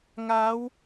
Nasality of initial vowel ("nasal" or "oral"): oral